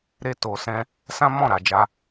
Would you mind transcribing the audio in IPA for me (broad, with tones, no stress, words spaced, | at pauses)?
ɾe˧ to˨sɛ̃˧ | sã˦mɔ̃˦˨ɾa˨d͡ʒa˧